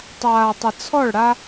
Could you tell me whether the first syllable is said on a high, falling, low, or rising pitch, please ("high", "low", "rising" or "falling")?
low